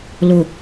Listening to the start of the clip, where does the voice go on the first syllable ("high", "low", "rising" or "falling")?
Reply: low